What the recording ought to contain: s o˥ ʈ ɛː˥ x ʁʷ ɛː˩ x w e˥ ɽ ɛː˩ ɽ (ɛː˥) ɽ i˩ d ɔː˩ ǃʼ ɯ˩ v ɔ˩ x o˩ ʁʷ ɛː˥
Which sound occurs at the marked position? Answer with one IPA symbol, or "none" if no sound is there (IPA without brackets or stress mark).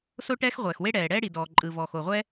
ɛː˥